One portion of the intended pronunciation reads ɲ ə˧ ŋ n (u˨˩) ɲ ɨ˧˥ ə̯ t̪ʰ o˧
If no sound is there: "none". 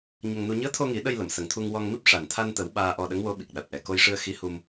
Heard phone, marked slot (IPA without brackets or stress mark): u˧